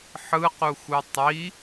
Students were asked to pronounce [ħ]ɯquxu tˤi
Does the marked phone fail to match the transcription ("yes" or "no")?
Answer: no